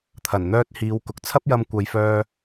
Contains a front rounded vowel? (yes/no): yes